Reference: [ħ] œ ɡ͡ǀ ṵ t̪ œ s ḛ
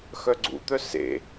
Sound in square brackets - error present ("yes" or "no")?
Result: yes